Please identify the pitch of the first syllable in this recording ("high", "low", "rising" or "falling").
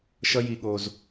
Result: high